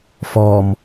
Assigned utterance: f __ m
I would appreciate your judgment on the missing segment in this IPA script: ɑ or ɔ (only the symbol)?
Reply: ɔ